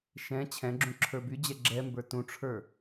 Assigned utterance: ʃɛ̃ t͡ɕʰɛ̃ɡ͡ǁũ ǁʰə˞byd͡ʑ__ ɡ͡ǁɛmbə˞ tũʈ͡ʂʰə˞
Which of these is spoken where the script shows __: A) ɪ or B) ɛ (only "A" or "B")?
B